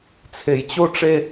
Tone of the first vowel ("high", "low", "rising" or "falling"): low